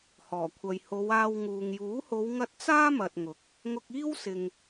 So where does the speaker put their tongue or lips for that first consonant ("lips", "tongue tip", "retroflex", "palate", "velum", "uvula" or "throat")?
throat